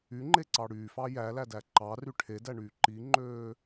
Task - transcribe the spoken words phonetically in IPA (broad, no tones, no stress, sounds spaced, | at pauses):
y ŋ͡ǃ e ǀ ɑ ɽ yː f ɑ j æ l æ d æ ǃ ɑ r y ʈʰ e d æ ɳ yː ǃ i ŋ͡ǃ øː